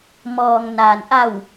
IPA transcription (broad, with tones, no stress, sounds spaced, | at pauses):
m ɔː˩ ŋ n aː˩ n ʔ a˧˩ w